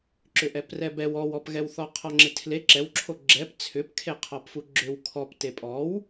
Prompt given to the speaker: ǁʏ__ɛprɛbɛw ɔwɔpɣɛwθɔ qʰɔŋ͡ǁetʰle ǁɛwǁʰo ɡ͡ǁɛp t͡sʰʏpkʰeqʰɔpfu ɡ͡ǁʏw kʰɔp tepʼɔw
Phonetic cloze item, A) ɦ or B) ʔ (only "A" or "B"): B